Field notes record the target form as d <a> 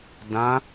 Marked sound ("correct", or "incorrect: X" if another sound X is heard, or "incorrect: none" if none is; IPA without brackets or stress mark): incorrect: ã